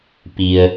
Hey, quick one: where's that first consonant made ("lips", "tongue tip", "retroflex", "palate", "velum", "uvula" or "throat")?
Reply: lips